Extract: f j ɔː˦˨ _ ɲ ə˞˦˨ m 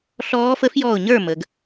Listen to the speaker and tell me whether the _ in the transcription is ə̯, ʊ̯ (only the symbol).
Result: ʊ̯